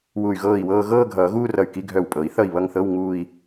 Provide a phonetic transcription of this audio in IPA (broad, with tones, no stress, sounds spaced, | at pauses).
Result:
w u˧˩ y̯ ɣ ɤː˥˩ i̯ w ɤː˥˧ ɣ ɤː˥˧ ɡʱ ʌː˨˩˦ ɣ uː˥˧ r ʌ˧˩ y̯ k i˧˥˧ ɡʱ œ˧˩ w pʼ ɤ˨˩˦ i̯ θ ʌ˥˩ i̯ β ʌ˥˧ ŋ θ ɤ˧˥˧ w ŋ uː˥˧ i̯